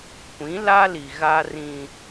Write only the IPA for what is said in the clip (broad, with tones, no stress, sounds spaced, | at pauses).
kʷ ĩ˨˦ l a˦ l i˨ ɣ a˦ r ĩ˦